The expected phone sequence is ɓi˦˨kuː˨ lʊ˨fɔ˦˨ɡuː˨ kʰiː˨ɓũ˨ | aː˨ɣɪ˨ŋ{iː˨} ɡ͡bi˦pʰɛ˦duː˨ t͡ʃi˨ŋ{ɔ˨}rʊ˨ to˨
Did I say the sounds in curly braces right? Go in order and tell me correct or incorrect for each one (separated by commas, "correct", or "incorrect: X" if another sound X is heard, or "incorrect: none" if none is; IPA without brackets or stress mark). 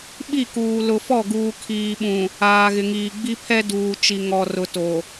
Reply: correct, correct